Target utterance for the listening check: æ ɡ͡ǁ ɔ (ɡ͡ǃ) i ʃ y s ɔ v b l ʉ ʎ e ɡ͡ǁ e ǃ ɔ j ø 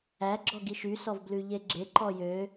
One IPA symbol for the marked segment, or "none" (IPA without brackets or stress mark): ɡ